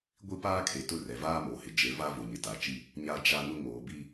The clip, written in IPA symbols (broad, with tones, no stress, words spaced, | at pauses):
ɡʷi˦paː˦ kʰe˨tʊ˦ rɛ˨vaː˦mo˨hɪ˨ d͡ʒe˨˦va˦ vʊ˨ɲɪ˨ta˨t͡ʃi˦ | ɲa˦d͡ʒa˦nʊ˦ ŋoː˨bi˦